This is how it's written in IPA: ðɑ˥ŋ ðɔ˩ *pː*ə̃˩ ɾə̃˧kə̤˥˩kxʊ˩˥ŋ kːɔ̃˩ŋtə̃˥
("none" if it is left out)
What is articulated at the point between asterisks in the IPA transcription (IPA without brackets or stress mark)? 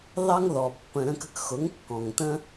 pː